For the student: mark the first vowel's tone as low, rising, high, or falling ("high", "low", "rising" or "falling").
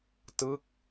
falling